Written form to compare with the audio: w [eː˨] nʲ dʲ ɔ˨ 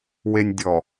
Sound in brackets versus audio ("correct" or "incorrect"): incorrect